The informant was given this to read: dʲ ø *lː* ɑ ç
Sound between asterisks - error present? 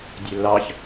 no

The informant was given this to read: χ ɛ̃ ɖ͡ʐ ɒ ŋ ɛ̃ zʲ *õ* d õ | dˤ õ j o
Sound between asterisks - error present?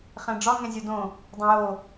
yes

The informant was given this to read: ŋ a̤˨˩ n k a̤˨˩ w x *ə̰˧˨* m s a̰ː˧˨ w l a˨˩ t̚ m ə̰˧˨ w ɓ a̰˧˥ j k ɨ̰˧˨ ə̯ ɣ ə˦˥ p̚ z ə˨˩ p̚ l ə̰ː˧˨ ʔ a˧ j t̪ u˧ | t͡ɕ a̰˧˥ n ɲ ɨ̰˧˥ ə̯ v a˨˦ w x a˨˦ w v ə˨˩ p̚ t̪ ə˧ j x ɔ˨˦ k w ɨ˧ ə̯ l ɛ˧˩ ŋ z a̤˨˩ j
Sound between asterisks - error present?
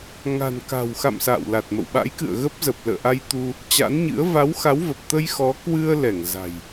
yes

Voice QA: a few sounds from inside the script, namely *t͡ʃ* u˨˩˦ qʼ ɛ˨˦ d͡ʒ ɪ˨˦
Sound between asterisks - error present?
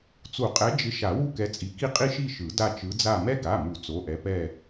yes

